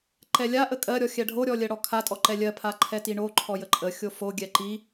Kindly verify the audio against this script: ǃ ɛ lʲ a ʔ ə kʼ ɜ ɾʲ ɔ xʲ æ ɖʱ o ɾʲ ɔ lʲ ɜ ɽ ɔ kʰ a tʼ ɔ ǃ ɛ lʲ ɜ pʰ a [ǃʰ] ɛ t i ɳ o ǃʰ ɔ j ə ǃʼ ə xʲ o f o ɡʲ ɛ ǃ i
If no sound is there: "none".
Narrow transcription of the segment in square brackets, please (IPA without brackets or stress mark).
ǃʰ